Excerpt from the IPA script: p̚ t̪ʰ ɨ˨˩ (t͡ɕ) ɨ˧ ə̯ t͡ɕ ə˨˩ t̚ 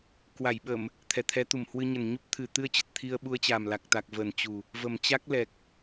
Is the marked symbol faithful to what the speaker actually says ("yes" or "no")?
no